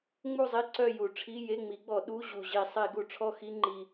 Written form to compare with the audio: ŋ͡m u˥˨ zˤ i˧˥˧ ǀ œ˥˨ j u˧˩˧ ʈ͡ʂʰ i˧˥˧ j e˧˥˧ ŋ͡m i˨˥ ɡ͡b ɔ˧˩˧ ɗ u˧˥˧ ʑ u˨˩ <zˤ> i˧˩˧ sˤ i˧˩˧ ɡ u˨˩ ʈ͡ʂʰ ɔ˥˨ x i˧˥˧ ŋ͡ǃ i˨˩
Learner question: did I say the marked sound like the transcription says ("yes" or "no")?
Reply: no